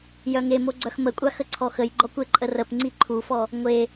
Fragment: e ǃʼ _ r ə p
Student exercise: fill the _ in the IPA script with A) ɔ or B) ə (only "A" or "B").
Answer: B